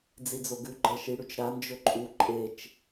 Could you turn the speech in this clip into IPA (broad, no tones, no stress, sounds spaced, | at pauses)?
d͡z i d͡z o ɡ ʉ ɡ͡ǃ ɐ ʃ i ɽ ʉ t͡ʃ ɾ a n d͡ʒ ɵ ǃʼ u ǃʼ e t͡ʃ